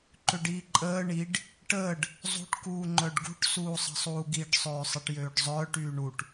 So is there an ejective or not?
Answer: yes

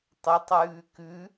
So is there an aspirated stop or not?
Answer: no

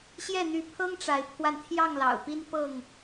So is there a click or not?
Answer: no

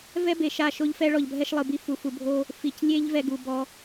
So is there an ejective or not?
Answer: no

